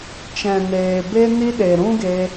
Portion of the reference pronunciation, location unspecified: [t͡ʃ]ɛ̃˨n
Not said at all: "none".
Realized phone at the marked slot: t͡ʃ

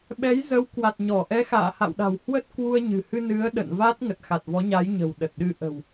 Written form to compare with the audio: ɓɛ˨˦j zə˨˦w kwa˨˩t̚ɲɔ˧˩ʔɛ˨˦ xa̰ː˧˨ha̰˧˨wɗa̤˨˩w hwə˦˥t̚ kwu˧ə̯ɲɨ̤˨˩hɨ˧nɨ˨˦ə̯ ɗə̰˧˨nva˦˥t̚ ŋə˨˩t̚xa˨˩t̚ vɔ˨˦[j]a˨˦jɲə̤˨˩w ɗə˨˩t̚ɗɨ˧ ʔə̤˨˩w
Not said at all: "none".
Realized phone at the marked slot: ɲ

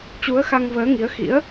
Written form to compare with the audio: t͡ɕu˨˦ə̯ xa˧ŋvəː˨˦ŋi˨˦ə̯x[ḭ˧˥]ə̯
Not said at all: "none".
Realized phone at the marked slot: ḭ˧˥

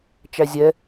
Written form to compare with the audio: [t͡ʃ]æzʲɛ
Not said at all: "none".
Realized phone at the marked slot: t͡ʃ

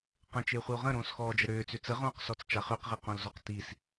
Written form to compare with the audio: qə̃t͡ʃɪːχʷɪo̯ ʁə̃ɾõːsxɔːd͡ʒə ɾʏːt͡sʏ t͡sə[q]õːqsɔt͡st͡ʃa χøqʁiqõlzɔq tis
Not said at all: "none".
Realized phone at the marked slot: ʁ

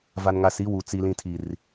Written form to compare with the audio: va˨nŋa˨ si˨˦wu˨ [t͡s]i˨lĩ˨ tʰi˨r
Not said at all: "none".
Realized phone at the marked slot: t͡s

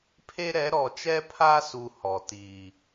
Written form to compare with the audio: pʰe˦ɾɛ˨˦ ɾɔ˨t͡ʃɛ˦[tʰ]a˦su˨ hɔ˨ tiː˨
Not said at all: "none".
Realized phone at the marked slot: pʰ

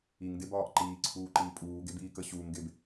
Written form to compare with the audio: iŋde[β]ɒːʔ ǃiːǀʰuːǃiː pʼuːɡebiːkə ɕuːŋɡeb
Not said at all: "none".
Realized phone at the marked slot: b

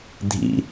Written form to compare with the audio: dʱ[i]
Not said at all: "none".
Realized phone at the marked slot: ḭ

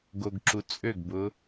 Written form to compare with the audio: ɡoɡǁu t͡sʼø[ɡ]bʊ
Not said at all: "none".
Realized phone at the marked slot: ɡ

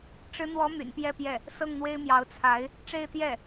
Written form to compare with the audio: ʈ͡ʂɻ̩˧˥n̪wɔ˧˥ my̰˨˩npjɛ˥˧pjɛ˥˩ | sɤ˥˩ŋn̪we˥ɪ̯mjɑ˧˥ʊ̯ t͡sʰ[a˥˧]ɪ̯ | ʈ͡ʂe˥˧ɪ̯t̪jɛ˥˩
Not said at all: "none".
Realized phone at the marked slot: a˧˥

